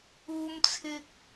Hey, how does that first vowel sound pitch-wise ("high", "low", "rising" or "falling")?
high